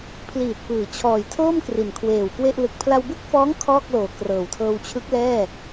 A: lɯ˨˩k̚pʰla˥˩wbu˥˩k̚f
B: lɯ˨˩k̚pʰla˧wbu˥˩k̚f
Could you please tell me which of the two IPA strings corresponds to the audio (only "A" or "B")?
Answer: B